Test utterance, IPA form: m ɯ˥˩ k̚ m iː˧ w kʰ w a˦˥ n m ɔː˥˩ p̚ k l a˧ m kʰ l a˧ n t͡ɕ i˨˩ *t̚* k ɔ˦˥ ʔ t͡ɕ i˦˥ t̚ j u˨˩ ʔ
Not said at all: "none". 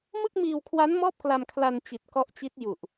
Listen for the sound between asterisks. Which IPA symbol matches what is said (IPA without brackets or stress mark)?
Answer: t̚